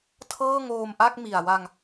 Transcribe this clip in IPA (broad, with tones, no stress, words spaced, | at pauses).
tʰɤː˥˩ŋoː˧mʔa˥˩k̚mi˨˩a̯ wa˧ŋ